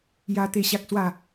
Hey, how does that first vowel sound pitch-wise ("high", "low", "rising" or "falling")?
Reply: high